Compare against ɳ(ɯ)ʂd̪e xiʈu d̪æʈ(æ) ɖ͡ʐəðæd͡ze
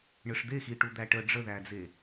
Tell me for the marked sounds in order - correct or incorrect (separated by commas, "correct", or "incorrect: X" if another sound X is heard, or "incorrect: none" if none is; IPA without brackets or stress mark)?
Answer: correct, incorrect: ə